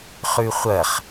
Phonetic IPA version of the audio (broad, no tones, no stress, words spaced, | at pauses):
χʉχʷɐχ